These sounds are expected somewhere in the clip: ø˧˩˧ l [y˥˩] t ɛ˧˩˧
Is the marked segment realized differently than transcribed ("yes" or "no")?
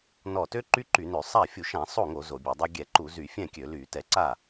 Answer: yes